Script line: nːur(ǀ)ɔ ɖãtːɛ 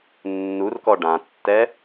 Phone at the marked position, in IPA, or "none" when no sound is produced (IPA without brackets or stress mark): k